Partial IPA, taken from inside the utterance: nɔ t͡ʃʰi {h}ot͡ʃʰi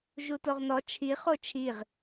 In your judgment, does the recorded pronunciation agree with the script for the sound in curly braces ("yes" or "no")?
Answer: no